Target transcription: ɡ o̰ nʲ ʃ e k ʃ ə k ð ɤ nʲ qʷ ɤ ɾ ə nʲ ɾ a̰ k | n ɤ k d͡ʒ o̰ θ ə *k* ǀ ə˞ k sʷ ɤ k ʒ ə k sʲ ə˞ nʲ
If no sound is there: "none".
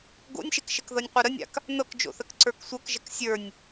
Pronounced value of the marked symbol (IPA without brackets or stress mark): k